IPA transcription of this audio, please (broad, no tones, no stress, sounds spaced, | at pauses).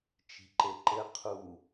t͡ʃ i̤ ǃ e ǃ ɘ qʰ u